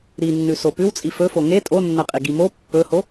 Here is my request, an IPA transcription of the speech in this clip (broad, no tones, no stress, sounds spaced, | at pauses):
ɾ i nː ʉ s o p ʉ w t͡sʼ i f ɵ f o ŋ e tʼ o nː ɐ qʼ i ɡ i m o pː ɵ h o